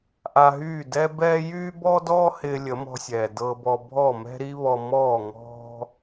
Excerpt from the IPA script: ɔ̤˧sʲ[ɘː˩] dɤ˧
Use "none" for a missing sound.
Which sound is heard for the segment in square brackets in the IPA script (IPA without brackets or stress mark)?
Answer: ɛː˩